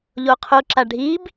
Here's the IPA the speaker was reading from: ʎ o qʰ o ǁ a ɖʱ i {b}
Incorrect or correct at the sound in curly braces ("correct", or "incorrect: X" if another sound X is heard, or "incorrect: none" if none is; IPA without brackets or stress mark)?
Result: correct